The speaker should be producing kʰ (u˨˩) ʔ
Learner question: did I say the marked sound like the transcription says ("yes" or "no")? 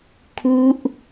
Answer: no